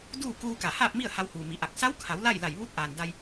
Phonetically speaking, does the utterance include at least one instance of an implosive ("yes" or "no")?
no